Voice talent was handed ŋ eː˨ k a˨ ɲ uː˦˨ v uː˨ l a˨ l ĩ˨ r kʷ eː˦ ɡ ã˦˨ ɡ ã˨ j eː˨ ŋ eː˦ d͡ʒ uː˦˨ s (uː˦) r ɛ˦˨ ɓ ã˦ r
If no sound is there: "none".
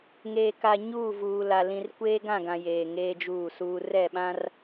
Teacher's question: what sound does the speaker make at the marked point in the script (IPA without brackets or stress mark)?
uː˦